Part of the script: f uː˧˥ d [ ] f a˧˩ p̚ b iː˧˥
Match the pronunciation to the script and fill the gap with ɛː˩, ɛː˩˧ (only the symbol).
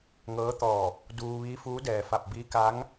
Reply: ɛː˩